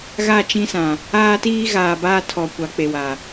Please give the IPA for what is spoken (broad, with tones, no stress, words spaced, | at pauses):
ɣa˦˨t͡ʃĩ˦sã˨ | aː˦tiː˦ ɣaː˨baː˦tʰɔ˨ kʷa˨˦k͡pe˨wa˨